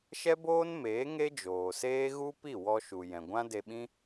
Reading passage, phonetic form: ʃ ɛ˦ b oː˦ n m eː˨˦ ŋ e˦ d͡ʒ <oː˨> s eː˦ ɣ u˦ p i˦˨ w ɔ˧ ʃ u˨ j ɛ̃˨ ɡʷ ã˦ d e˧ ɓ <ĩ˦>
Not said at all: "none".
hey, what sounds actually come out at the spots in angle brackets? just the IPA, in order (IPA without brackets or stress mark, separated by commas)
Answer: oː˨, ĩ˦